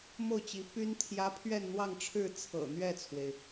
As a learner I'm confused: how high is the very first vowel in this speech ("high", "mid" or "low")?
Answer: mid